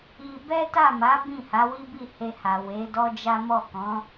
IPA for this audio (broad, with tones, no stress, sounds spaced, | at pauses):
i˧ b ɛ˦ t a˦˨ m a˨˦ b ĩ˦˨ h a˨˦ w i˦ b i˦˨ h e˧ h a˨ w e˨˦ d ɔ˦ d͡ʒ a˦ m ɔ˦˨ k ɔ̃˨˦